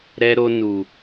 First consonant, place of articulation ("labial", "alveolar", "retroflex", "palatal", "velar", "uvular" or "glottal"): alveolar